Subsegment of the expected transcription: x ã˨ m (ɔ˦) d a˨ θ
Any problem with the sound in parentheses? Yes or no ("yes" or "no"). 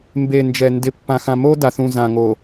yes